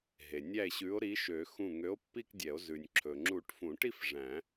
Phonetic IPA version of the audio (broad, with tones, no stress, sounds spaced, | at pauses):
ɦ e˩ nʲ æ˧˩ e̯ ɕ ʉ˨˥ o̯ ɾ i˨˥ ʃ ø˨˩˦ x ũ˧˩ ŋ ø˨˥ o̯ pː i˥˧ k dʲ ɛ˨˩˦ o̯ z ʉ˩ nʲ ǁʰ ɵ˩ ŋ͡ǁ u˨˩˦ ʈ f ũ˨˩˦ ʈ i˥˧ f ʐ æ̃˨˩˦